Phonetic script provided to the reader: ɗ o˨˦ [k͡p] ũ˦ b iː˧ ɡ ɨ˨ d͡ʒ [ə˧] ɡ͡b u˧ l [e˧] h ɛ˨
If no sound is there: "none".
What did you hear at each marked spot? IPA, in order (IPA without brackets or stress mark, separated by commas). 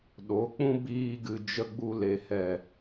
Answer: k͡p, ə˧, e˨